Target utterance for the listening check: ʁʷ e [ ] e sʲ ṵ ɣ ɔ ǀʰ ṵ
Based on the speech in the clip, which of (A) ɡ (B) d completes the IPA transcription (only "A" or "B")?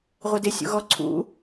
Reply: B